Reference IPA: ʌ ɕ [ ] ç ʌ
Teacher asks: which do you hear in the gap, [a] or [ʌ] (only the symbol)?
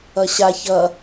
a